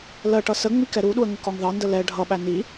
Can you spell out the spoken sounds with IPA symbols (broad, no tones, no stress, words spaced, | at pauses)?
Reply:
lɜʈʌ səŋ͡mik ɛɾuɗuə̯ ŋəkɒŋðɑndə lɛ ɖʱʌɓæ ni